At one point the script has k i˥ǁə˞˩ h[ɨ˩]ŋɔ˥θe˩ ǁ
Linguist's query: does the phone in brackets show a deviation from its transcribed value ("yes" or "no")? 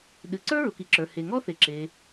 yes